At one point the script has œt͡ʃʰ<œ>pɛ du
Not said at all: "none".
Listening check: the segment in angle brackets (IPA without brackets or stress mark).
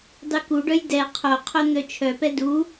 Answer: œ